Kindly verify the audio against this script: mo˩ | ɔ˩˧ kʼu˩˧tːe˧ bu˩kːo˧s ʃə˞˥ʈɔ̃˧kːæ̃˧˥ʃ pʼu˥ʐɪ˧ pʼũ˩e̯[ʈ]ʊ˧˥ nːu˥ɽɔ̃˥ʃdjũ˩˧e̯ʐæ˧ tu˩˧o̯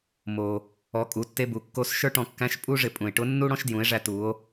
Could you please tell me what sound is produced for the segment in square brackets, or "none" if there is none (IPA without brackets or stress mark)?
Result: ʈ